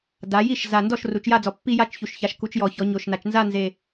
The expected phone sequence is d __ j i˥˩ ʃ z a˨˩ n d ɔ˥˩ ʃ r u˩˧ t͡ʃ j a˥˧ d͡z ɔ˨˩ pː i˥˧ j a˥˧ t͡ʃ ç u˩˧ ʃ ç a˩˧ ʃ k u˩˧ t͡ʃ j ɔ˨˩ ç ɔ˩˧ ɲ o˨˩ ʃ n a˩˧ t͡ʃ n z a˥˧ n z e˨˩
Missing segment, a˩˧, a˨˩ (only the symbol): a˩˧